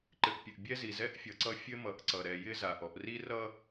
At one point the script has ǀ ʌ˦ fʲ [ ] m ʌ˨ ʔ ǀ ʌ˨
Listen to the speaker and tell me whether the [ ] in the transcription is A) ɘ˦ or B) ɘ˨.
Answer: A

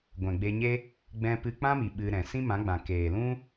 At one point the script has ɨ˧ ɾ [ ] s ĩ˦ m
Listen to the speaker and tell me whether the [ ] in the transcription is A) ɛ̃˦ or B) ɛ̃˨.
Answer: B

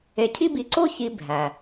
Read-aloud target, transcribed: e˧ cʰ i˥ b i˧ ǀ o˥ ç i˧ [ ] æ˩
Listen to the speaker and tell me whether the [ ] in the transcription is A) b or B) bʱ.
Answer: B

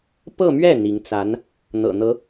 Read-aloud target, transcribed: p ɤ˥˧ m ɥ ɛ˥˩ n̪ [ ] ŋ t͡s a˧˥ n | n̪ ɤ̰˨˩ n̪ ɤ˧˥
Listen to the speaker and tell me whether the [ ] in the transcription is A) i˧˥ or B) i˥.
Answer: A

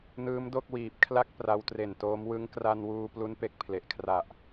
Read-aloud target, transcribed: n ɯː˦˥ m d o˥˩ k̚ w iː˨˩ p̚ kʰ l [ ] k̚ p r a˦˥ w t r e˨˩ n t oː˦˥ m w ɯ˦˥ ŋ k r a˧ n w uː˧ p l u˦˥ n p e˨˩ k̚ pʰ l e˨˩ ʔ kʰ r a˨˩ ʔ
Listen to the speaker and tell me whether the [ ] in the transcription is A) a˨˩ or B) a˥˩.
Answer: B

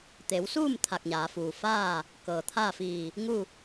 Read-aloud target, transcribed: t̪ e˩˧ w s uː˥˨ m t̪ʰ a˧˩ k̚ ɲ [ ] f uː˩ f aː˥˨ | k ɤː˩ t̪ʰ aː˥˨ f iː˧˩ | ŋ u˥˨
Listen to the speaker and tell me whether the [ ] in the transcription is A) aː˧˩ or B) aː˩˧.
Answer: B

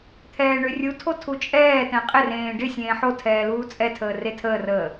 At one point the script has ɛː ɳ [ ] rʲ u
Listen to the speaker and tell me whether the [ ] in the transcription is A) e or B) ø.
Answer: B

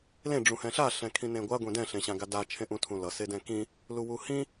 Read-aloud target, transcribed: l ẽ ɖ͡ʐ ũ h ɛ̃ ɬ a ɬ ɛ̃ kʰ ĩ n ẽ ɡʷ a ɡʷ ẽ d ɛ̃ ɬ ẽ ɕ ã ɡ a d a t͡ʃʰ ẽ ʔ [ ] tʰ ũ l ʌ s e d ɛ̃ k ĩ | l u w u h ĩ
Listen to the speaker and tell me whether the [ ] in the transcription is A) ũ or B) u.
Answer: A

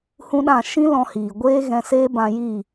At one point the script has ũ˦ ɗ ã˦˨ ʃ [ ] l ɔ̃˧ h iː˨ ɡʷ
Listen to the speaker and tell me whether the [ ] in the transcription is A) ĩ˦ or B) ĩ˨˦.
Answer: A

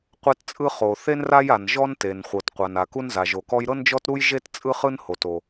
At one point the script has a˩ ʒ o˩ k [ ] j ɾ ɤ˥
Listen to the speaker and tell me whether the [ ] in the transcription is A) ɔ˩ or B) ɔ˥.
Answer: B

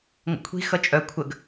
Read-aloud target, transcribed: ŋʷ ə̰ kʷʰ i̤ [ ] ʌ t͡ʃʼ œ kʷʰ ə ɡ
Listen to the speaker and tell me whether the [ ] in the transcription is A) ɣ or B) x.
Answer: B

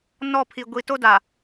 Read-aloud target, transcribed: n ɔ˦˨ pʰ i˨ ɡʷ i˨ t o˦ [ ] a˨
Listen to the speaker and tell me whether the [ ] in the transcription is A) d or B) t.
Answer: A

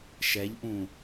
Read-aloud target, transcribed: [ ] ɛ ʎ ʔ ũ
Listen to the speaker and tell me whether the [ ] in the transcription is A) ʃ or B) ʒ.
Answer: A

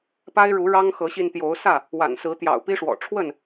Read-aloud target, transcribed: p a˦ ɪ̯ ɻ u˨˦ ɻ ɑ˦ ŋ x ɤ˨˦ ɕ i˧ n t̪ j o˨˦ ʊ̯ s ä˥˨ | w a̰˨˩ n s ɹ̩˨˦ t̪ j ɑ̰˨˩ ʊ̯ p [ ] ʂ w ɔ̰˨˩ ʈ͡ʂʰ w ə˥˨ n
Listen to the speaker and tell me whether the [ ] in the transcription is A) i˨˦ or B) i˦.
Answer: B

